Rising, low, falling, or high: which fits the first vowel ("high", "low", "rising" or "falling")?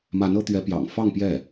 rising